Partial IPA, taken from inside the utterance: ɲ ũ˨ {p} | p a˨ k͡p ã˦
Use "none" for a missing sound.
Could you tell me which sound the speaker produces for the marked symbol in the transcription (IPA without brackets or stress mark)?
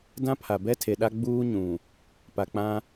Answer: none